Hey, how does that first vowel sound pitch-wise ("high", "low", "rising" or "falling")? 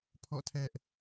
falling